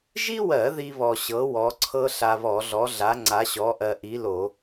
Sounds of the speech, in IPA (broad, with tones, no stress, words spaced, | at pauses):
ʒi˥wɜ˧˩˧ ði˥βɔ˧ ɕɤ˨˥ wɔ˨˥ǀʰɤ˥ ɬa˧βɔ˧˩˧ɮɔ˨˥ɮa˨˥ ŋ͡ǀa˨˥ɕɔ˨˥ʔɜ˧ ʔi˨˥lo˧˩˧